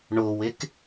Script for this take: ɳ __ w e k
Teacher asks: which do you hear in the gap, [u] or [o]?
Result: o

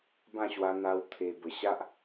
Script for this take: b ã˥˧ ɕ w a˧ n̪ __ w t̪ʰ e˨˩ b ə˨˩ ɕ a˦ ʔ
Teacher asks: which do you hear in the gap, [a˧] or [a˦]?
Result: a˧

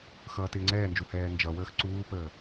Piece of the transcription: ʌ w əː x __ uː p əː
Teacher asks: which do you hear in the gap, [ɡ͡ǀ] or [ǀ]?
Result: ǀ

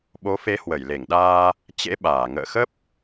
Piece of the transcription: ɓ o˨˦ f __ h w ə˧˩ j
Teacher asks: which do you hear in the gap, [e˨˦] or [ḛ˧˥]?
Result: e˨˦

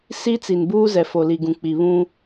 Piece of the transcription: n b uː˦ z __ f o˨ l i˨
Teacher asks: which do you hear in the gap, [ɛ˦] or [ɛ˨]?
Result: ɛ˨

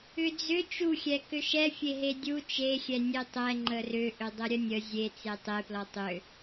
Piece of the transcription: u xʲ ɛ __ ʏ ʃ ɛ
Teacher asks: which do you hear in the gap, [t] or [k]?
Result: k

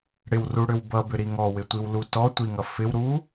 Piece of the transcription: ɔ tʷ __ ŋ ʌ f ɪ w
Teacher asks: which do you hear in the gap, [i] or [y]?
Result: i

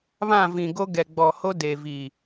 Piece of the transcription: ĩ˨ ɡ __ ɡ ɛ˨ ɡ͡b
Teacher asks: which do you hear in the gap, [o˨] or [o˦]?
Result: o˦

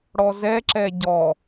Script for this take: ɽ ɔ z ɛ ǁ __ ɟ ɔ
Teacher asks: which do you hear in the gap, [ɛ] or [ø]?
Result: ɛ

